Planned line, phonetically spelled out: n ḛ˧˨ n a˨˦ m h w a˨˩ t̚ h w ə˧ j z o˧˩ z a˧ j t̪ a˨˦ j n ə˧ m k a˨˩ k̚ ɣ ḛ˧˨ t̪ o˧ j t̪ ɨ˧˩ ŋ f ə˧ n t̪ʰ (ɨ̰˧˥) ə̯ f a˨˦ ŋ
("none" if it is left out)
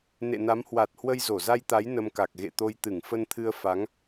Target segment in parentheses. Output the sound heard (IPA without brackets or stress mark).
ɨ˧